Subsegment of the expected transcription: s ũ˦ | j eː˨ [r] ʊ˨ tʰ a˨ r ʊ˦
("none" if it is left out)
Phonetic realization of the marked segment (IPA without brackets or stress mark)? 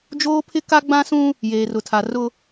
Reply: r